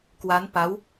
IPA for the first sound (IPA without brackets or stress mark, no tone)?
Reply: k